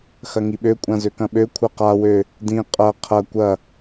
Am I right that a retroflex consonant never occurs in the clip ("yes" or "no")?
yes